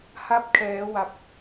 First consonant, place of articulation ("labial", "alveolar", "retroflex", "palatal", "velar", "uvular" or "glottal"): glottal